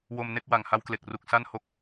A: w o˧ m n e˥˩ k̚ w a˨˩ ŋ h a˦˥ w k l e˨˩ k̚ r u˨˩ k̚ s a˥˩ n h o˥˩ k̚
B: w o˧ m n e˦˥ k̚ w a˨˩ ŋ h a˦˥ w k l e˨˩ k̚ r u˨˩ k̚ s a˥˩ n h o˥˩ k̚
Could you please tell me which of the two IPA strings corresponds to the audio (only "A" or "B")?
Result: A